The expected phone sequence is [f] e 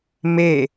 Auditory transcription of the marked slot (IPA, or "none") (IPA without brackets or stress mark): m